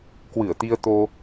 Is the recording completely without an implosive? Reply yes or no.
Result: yes